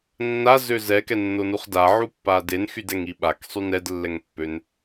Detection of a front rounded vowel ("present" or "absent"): present